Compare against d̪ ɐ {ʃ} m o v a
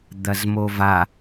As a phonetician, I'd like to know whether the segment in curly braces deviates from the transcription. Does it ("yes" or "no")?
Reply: yes